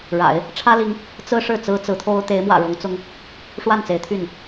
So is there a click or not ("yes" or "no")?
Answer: no